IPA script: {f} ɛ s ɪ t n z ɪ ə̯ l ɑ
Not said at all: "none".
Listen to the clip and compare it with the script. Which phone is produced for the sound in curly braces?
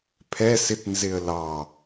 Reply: pʰ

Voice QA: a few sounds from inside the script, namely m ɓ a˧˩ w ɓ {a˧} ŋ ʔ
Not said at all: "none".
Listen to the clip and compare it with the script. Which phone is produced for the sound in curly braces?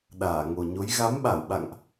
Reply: a̰˧˨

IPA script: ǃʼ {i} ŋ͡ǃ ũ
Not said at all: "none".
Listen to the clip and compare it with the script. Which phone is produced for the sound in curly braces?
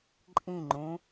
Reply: ĩ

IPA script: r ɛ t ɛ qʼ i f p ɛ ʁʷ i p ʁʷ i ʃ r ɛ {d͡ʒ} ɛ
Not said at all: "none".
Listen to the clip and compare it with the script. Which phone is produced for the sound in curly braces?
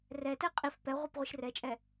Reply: t͡ʃʼ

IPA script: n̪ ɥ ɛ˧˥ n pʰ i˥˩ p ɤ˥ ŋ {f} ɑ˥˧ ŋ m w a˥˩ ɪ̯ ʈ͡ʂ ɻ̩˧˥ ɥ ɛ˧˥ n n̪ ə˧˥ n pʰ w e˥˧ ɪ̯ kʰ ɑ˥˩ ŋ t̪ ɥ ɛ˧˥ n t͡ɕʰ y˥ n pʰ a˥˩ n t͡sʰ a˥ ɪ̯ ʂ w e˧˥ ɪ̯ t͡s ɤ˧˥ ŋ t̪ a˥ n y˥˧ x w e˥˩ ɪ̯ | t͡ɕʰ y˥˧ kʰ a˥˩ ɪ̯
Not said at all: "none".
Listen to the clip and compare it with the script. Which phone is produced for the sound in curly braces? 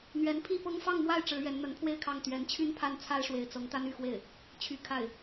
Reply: f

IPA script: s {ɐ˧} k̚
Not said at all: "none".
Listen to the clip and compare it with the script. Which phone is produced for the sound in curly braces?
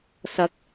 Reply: ɐ˨˥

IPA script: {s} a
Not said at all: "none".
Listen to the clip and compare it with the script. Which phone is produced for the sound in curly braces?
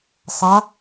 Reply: sˤ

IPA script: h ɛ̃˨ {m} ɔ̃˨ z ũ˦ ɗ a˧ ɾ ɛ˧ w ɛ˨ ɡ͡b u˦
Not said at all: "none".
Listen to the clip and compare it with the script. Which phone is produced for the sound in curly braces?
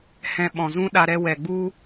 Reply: ɓ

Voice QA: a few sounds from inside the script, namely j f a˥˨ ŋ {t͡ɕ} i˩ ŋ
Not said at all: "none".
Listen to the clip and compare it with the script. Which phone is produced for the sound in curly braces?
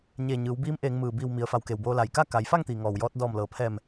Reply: t̪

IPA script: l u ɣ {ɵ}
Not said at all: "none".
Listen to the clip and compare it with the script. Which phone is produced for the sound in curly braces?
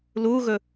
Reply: ɵ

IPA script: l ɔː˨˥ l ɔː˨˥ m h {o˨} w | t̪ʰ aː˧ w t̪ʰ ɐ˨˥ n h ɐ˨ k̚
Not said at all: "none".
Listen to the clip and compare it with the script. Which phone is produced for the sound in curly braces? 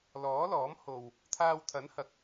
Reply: o˨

